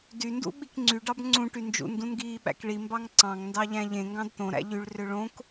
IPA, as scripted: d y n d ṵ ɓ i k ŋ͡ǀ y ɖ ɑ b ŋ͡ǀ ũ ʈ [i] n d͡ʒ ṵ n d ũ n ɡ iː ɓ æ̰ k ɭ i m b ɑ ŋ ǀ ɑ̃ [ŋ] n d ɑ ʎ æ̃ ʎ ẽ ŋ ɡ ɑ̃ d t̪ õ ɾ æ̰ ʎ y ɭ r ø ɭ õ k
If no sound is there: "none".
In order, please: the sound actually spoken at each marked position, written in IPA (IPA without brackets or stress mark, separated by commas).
y, ŋ